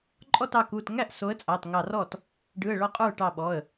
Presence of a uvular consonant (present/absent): present